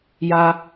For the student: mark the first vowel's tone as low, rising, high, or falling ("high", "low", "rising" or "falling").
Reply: high